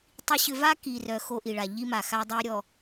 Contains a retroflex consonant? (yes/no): yes